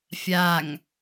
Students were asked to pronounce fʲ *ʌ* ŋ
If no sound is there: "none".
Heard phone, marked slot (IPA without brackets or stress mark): a